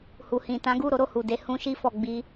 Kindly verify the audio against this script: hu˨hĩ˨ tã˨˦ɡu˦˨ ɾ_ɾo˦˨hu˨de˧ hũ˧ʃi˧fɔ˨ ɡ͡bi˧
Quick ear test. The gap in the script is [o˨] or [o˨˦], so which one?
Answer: o˨˦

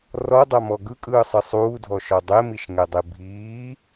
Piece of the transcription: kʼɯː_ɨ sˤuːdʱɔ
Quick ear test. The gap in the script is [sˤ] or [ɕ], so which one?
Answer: sˤ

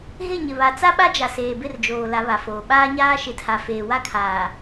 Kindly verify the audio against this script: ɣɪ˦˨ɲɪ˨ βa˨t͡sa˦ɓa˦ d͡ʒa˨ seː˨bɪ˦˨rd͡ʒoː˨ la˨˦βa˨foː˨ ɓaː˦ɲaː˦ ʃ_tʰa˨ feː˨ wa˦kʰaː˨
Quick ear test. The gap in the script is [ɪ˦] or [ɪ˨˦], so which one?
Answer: ɪ˨˦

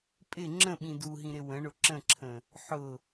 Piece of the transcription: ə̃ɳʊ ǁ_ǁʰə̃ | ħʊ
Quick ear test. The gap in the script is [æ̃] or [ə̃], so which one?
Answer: ə̃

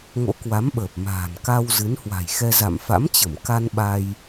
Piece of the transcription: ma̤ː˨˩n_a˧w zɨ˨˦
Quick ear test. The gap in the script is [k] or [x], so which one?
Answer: k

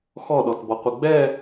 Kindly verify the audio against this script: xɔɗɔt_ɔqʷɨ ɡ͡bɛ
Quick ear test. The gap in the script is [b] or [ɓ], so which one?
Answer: b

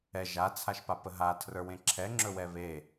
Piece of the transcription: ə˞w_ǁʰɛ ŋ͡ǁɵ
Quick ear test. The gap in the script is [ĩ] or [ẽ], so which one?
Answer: ẽ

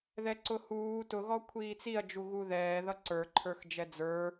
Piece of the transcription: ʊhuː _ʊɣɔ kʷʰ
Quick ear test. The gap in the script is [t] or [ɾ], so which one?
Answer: t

